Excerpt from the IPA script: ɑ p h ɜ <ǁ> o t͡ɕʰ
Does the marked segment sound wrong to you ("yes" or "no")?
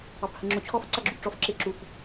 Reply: yes